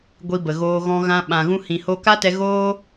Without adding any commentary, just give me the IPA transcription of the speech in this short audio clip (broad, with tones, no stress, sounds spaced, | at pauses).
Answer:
ɡʷ i˧ b ə˨ ɣ oː˧ ɣ ɔ̃˧ ɣ ã˧ ɓ ã˨ ɣ ũ˧ h ĩ˨ h o˧ k a˦ t ɛ˧ ɣ oː˦